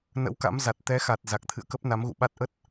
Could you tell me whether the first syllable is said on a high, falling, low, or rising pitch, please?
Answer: rising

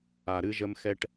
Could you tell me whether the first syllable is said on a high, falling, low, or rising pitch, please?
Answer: low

